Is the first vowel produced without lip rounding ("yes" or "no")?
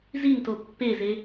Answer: yes